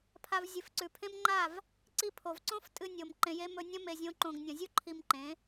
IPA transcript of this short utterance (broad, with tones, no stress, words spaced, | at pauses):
pʰa˧vzʲɨ˨fǀʉ˨ pʰẽ˦mŋ͡ǃa˦˨v | ǀi˧pʰo˨vǀõ˦f tʼɨ˧nʲo˨m ǃẽ˧je˦ mɵ˧nʲɐ̃˦ me˧zʲõ˦ǃõ˧ɡ nʲɐ̃˨zʲu˦ ǃʰi˧mǃẽ˨˦